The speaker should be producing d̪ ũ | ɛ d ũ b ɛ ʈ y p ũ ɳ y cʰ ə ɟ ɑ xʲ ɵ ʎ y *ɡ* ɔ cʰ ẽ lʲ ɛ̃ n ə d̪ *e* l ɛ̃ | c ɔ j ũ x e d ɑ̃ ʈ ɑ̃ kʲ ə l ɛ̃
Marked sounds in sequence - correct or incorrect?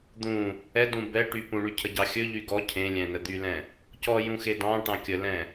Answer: correct, incorrect

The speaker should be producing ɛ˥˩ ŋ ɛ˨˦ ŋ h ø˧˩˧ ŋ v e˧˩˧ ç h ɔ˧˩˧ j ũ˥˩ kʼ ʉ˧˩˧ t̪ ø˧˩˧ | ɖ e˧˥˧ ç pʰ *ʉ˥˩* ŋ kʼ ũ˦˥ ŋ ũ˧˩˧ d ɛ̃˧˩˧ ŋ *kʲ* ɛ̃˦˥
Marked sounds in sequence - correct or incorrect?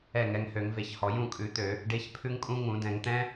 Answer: incorrect, incorrect

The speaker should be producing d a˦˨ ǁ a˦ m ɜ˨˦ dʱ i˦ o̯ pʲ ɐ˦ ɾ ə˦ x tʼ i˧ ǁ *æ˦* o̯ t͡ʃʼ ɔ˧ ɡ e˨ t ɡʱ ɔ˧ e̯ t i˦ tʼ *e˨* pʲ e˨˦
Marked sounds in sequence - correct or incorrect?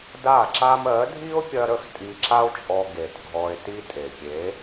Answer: incorrect, correct

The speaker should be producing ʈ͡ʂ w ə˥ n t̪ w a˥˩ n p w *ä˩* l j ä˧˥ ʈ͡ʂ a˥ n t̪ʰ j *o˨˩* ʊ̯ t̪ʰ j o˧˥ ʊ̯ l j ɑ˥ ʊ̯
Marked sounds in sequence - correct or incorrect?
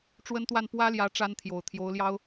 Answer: incorrect, correct

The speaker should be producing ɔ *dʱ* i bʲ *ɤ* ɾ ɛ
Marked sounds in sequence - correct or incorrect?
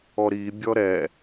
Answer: incorrect, incorrect

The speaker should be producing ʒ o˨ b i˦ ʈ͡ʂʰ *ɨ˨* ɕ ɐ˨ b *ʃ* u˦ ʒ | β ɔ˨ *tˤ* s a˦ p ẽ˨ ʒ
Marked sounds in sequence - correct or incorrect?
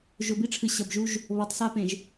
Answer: correct, incorrect, correct

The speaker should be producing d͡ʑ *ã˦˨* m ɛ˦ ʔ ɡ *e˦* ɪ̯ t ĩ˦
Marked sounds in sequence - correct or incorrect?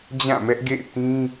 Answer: correct, incorrect

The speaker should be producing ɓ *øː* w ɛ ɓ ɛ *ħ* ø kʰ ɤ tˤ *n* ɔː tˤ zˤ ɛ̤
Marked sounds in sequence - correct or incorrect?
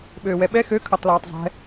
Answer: correct, incorrect, incorrect

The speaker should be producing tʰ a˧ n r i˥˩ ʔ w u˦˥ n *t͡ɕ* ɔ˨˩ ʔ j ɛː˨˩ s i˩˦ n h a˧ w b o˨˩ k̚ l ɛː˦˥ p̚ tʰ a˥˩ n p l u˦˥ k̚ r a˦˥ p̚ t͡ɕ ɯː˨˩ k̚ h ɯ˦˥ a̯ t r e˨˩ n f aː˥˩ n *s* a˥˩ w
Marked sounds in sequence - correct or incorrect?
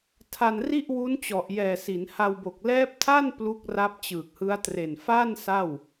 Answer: correct, correct

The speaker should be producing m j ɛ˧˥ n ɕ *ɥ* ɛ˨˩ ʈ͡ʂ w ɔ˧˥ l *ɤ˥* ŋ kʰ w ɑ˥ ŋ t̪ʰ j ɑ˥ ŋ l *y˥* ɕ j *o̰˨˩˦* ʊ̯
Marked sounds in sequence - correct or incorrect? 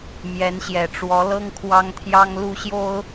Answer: incorrect, correct, incorrect, incorrect

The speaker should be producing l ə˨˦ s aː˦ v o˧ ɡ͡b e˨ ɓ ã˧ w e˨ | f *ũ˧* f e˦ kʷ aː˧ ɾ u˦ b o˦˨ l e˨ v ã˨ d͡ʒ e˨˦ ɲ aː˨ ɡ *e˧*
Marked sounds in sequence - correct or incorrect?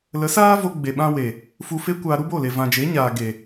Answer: incorrect, incorrect

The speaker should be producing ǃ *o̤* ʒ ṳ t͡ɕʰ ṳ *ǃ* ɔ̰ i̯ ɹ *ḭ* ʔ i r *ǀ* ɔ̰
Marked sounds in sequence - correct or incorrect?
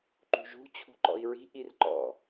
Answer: incorrect, correct, incorrect, incorrect

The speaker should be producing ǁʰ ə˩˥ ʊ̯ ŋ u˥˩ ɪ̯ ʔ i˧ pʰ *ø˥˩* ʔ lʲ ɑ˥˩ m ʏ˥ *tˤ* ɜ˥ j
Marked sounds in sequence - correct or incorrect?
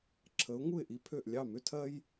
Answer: correct, incorrect

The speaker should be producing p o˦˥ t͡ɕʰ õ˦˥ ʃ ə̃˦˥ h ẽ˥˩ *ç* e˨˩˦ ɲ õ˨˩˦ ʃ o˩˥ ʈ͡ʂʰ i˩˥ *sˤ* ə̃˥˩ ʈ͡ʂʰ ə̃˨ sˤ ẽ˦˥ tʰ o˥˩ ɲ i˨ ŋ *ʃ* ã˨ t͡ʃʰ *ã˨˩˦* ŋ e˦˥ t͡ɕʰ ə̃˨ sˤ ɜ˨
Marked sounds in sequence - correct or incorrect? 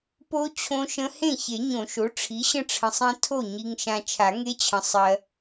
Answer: correct, incorrect, correct, incorrect

